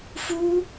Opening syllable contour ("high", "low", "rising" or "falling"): high